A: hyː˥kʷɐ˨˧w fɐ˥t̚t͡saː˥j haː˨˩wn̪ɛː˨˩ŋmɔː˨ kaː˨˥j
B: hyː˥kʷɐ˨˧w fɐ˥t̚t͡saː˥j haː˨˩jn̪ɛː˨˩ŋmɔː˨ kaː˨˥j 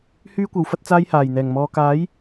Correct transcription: B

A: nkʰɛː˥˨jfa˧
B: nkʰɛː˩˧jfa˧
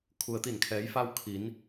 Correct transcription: B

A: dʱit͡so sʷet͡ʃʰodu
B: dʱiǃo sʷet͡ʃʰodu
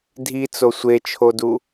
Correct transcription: A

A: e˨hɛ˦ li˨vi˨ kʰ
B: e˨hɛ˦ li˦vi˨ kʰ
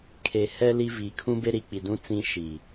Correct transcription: B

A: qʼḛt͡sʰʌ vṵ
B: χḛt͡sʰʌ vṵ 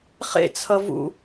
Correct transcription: B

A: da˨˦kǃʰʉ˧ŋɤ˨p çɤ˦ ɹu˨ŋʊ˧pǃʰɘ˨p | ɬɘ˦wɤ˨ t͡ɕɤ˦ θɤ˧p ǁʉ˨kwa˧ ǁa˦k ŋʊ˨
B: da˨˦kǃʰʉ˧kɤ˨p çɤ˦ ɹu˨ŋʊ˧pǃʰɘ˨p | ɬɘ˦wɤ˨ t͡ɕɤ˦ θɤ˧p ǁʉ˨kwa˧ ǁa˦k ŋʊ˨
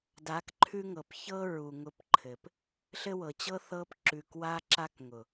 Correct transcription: A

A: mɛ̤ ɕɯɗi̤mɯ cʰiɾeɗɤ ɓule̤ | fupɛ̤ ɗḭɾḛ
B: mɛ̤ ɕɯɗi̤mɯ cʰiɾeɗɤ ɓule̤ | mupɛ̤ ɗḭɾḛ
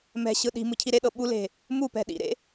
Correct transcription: B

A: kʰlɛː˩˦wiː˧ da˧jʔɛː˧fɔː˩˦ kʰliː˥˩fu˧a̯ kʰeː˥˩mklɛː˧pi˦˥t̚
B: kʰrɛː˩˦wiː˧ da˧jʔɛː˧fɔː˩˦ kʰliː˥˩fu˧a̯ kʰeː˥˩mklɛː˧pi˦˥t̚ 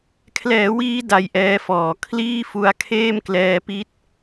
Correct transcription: A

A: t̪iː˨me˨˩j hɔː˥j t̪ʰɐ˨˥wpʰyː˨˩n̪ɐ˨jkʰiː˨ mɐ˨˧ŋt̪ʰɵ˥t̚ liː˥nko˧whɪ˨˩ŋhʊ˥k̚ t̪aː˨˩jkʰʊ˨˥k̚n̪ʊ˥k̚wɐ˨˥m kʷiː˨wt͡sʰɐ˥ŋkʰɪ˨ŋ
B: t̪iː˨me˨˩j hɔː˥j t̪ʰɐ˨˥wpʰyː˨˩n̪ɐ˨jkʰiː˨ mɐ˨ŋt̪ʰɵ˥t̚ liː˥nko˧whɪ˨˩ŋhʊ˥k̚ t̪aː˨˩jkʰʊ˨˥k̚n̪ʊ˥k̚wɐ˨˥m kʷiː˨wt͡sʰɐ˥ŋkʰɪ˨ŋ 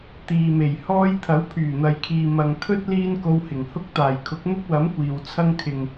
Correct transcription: B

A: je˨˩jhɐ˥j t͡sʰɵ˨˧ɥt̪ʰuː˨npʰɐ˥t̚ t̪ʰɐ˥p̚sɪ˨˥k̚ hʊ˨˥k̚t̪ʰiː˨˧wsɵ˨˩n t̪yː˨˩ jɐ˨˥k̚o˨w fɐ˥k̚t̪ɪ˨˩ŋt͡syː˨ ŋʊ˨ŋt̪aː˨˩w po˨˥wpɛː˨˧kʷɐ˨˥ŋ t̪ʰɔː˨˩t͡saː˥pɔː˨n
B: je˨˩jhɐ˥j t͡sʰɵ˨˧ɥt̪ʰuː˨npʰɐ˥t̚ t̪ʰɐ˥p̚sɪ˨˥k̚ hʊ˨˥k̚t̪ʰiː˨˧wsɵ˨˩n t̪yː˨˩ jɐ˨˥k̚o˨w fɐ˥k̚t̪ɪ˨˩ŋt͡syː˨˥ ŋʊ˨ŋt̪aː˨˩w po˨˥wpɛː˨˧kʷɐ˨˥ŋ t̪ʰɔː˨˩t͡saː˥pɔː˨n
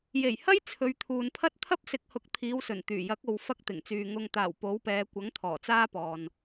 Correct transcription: A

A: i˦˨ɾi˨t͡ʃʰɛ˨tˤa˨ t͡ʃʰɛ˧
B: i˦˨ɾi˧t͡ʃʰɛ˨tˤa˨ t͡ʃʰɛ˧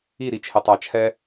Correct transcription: A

